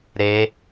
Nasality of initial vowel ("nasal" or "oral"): oral